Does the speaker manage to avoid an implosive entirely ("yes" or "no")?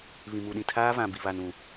no